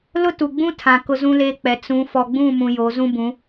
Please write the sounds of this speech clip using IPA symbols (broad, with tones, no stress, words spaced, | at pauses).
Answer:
lʊ˦tu˨ɡ͡bũ˦tʰã˨ kʊ˦zũ˦leː˦k͡pɛ˨˦ t͡sũ˨˦ fɔ˨ɡ͡bũ˦˨mũ˨ jo˨˦zũ˦ bũ˨˦